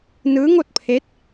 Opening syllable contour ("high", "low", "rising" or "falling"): rising